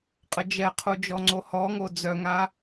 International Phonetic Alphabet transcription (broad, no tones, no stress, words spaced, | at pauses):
qʼəd͡ʒɛqʰu d͡ʒɔŋ͡ǀohɔŋo d͡zœŋa